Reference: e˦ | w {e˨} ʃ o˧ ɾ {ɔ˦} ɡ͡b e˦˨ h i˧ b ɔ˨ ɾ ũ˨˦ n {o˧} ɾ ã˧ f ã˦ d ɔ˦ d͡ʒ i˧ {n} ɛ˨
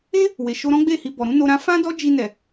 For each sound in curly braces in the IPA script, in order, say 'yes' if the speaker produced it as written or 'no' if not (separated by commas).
yes, no, yes, yes